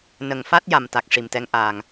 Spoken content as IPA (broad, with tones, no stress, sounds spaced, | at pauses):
n ə˨˩ ŋ f a˦˥ t̚ j a˨˩ m t̪ a˨˩ k̚ ʂ i˨˩ m t̪ ɛ˧˥ ŋ ʔ aː˨˩ ŋ